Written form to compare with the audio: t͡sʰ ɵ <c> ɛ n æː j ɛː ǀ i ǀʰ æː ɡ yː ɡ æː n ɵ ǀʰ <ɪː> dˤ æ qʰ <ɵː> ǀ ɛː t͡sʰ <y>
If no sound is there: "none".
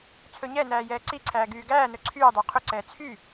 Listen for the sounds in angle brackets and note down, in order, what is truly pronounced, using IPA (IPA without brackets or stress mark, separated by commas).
ɲ, yː, ɵ, y